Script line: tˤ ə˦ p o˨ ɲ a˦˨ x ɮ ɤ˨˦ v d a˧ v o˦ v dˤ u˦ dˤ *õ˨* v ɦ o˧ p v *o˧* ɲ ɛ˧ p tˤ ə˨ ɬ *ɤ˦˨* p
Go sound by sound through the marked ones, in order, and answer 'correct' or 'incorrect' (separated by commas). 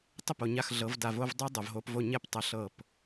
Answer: incorrect, incorrect, correct